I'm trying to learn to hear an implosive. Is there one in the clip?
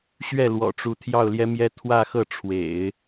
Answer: no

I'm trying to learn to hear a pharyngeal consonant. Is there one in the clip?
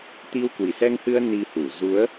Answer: no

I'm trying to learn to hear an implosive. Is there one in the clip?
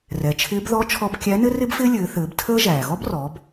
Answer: no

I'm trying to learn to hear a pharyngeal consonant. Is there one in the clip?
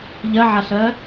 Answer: yes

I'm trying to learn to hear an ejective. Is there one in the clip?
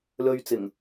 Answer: no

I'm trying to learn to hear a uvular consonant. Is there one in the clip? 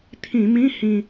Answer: no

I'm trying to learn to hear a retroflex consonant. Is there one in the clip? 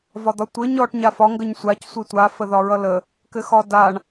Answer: yes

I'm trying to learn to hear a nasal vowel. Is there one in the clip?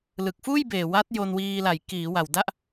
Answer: no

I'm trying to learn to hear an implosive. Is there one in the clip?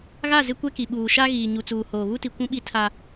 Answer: yes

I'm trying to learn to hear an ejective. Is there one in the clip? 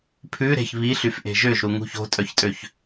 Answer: yes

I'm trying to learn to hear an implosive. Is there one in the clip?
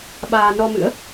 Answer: yes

